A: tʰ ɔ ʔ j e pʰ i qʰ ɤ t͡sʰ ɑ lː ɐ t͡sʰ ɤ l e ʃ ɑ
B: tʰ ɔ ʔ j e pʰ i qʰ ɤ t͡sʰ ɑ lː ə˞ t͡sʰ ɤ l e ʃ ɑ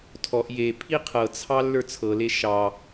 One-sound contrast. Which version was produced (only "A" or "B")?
B